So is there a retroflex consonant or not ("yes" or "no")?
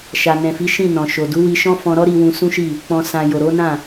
no